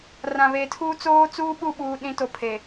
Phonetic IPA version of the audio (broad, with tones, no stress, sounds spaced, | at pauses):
r ã˨ β eː˨ tʰ uː˦ t͡s oː˦ t͡s uː˦ ɓ u˦˨ ɓ uː˦ ɗ ĩ˦ t o˦˨ pʰ e˨